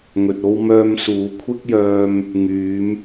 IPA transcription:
ŋ ɵ˨ t̚ o˥ w m œː˧ m s uː˨˧ kʷʰ ɪ˥ k̚ j œː˧ m | ŋ yː˨˥ m

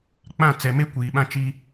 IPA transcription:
k͡p ã˦˨ t͡s ɛ˨ m e˦ kʷ iː˨ ɓ ã˦ t͡ʃ i˦

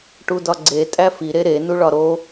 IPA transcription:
ʈ u d ɒ ɡ͡ǀ e tʼ æ f i ɾ e ɾ e n u ɭ ɒ ɾ o

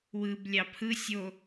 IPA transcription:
w ɯ b lʲ ɑ pʰ ɯ sʲ o

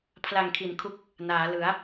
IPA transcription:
pʰ l a˨˩ ŋ kʰ i˩˦ n kʰ u˦˥ k̚ | n aː˩˦ l ɯ˩˦ a̯

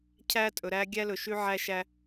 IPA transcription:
cʰ æ˦ tʼ ɵ˨ ɾ æ˦ ɡʲ æ˦ l ɵ˨ ʃ y˦ ʕ æ˦ ʃ æ˦

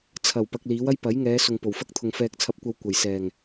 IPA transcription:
t͡sʰ ɐ˨˩ w p ɐ˧ k̚ l iː˨˥ w ɐ˥ j p ɐ˨˥ j ŋ ɛː˨˧ s ʊ˨ ŋ p o˨˩ w f ɐ˥ k̚ t̪ʰ ʊ˨ ŋ f ɛː˧ k̚ t͡sʰ ɐ˧ p̚ kʷ ɐ˧ w kʷ ɐ˨˩ j s ɛː˨˩ ŋ

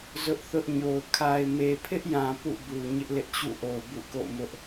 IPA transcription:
z ʊ˦ ʔ θ ʊ˦ ʔ ɲ o˨ ʊ̯ kʰ a˨ ɪ̯ m e˨ pʰ ɪ˦ ʔ j ã˨ p ṵ˦˨ b u˨ ɲ ɪ˦ ʔ l ɪ˦ ʔ t͡ɕ ṵ˦˨ ʔ o˨ ʊ̯ b ṵ˦˨ k o̰˦˨ ʊ̯ m ʊ˦ ʔ

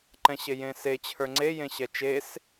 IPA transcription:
ǃ ɛ̃ ɕ e j ẽ s e t͡ɕʰ ə˞ ŋ͡ǀ e j ẽ ɕ ɛ t͡ʃ e s

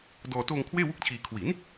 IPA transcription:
d ɔː˧ t oː˧ ŋ kʰ w eː˥˩ w u˥˩ k̚ t͡ɕʰ iː˧ kʰ w i˩˦ n

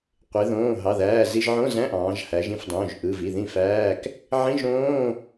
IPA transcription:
qʷ e˩˧ ð õː˩˧˩ ɦ ɑ˩˧˩ ð æː˩˧˩ z i˧ ʒ ʕ õ˧˥˧ z æ̃˧˥˧ ʔ ɑ̃ː˩˧ ʒ h æ˩˧ ʒ ĩ˥˩ f dˤ õː˩˧˩ ʒ ʔ ɯ˩˧˩ v i˩˧˩ ð ĩ˥˩ f æː˧˥˧ k | ʕ ĩ˧˥˧ ʒ ɾ õː˧˥˧

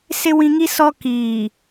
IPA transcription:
s ɪ˦ w ĩ˦ ŋ i˦ s ɔ˦ k iː˨

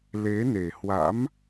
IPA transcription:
l e˨˦ n e˨˩ h w a̰˧˥ m

